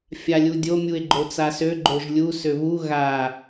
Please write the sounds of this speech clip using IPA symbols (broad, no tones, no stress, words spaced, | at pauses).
fʲalʲudʲo mʲue̯ɡ͡ǃot͡sasø ɡ͡ǃoʒlʲu søβu ɣa